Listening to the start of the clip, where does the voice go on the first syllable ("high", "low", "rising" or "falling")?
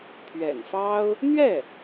low